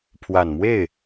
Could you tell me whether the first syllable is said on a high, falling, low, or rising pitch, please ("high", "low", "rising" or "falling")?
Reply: low